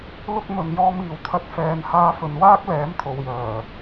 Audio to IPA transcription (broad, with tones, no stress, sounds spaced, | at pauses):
l ʊ˥ k̚ m ɵ˨ n j ɔː˧ m iː˨ w t̪ʰ ɐ˧ t̚ f ɛː˨ n h aː˧ f ɵ˨ n w aː˥ k̚ l ɛː˨˥ m t̪ʰ o˨ w j œː˨˩